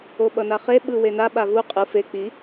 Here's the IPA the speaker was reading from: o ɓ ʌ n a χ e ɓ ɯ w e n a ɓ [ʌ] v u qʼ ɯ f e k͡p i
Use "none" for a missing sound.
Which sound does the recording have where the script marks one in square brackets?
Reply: a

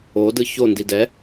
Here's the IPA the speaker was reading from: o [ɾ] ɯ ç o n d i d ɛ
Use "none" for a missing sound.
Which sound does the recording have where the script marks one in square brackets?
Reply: d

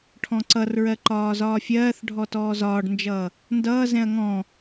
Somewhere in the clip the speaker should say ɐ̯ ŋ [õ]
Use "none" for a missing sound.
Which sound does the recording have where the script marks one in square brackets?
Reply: ɔ̃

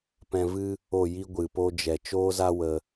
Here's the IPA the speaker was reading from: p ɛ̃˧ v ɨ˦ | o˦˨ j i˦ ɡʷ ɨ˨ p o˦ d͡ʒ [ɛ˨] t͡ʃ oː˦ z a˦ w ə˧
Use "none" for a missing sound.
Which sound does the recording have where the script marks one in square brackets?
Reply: ɛ˨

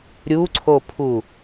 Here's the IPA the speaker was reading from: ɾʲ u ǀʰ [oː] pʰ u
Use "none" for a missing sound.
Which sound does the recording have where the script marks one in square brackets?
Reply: o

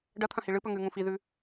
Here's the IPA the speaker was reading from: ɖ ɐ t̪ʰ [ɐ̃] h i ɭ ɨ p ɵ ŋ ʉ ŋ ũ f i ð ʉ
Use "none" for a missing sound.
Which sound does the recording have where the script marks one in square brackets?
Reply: ɐ̃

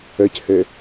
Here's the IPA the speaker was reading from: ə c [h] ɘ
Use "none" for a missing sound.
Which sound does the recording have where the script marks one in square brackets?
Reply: h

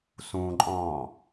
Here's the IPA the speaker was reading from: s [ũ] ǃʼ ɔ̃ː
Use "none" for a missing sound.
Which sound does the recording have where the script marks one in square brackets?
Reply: ũ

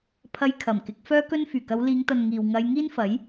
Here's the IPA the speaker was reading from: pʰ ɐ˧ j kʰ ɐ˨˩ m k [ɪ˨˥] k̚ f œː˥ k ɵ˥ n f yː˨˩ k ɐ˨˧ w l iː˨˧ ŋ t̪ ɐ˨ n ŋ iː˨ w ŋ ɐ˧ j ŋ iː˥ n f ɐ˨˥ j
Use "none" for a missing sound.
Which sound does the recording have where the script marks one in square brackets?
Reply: ɪ˨˥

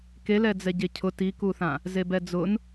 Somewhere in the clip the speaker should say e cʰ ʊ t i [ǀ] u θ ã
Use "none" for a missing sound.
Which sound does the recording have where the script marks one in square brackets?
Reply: k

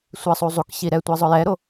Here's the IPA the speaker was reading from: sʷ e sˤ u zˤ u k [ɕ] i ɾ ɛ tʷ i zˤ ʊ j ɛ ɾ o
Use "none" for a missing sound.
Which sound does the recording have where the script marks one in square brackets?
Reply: ɕ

